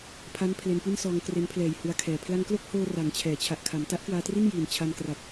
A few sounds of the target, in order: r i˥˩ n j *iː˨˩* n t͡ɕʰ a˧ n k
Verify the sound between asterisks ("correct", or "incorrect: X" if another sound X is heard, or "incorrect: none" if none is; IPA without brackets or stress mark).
correct